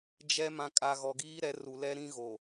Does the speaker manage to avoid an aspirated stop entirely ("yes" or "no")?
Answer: yes